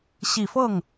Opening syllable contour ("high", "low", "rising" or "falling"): low